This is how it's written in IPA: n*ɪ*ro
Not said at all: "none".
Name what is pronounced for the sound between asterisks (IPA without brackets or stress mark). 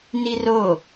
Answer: i